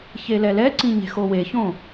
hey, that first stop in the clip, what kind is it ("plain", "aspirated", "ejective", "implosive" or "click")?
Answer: click